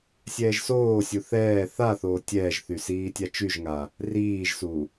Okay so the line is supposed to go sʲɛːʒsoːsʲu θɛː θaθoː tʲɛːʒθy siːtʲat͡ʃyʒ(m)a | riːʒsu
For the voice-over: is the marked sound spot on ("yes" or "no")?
no